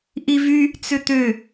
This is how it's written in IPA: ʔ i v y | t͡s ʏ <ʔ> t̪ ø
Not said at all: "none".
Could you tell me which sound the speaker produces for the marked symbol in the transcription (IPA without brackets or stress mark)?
none